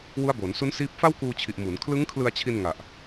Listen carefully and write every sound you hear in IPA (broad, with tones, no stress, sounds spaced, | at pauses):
w u˦˥ a̯ b o˩˦ n s u˦˥ n s iː˦˥ p̚ f a˥˩ w k uː˧ t͡ɕʰ i˨˩ ʔ m u˩˦ n kʰ l ɯ˦˥ ŋ kʰ l ɯ˧ a̯ t͡ɕʰ i˧ n ŋ a˨˩ ʔ